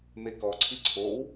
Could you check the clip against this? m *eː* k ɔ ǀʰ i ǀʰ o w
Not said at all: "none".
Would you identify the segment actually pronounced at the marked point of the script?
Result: e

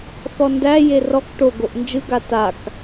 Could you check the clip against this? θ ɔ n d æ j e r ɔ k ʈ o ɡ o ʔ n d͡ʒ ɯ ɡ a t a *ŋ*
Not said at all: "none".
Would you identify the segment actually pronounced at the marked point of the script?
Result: k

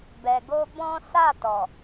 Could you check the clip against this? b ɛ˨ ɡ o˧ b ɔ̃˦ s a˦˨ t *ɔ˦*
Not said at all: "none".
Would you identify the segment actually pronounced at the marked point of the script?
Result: ɔ˨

